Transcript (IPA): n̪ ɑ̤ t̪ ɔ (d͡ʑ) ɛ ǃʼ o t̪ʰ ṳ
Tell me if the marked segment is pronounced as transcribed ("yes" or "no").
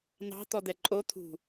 no